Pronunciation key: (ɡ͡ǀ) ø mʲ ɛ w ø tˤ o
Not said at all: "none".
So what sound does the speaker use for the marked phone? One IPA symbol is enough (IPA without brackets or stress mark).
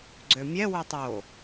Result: ɡ͡ǀ